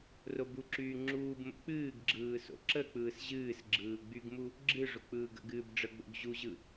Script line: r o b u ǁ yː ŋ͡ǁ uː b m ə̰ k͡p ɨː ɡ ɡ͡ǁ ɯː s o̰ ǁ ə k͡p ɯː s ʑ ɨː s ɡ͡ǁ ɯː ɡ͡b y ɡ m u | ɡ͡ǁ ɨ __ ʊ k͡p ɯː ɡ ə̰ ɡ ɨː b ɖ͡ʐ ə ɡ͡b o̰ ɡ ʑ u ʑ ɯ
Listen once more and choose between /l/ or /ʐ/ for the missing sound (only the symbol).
ʐ